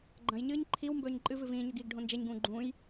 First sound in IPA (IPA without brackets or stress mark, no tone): ɡ͡ǃ